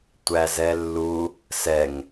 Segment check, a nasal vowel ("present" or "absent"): absent